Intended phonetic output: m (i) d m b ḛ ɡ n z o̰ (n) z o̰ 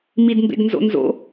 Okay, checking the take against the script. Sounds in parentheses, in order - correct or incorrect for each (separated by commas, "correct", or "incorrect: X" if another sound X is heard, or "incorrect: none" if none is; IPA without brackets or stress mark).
correct, correct